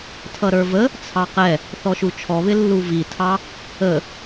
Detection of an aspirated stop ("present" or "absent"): present